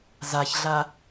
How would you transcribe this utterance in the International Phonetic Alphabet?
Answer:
z a ç ɮ a

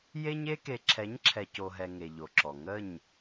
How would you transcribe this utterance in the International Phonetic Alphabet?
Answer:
j e˦ ɲ e˦ k e˨ ǁʰ ɛ˨˦ ɲ ǁʰ ɛ˨ c o˨ ɦ ɛ˨ ŋ e˨ ʎ o˨ ǁ ɔ˨ ŋ ə˦˨ ɲ

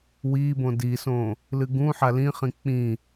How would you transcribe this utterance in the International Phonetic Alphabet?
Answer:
w i b õ d i s õ | l ɨ ɡ ũ ħ a l ĩ χ ĩ k͡p ĩ

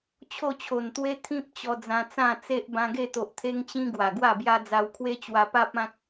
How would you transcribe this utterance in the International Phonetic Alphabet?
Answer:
t͡ɕʰ o˥˧ t͡ɕʰ o˨˩ n t̪ w e˦ t̪ʰ ĩ˦ p̚ t͡ɕ ɔ˧ d͡z ã˧ t͡s ã˥˧ t͡s e˦ ʔ b ã˧ ɡ e˥˧ t̪ o˨ ʔ t̪ʰ e˦ ŋ t͡ɕ ĩ˦ ɡ w a˨˩ ɡ w a˥˧ b j a˦ d͡z a˧ w kʰ w e˦ t͡ɕ w a˦ p a˦ p̚ ã˦ k̚

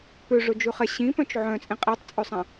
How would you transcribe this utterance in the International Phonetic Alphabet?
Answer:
p ø ʐ ɵ d͡ʒ ʉ χ ɛ ɕ ĩ p œ̃ t͡ʃ ʕ œ̃ t͡sʼ ĩ qʼ i tˤ t͡sʼ ø sˤ æ̃

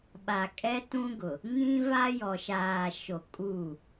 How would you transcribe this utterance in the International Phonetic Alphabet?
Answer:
ɓ a˨ kʼ ɛ˦ t ũ˦ ɡ ʊ˨ | ŋ ĩ˦ v a˦ j ɔ˨ ʃ aː˨ ʃ o˨ kʼ uː˦˨

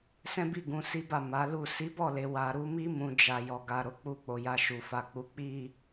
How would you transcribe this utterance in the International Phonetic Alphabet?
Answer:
s ɛ̃˦ b i˦˨ ɡ ũ˧ s i˦ b a˦˨ m a˨˦ l u˦˨ s i˨˦ b ɔ˦˨ l e˨ w a˨ ɾ u˧ m i˦ m ũ˧ d͡ʒ a˨ j ɔ˨ ɡ a˨ ɾ o˨˦ k͡p u˧ k͡p o˨ j a˨ ʃ u˨ f a˨ k͡p u˨˦ k͡p i˦˨

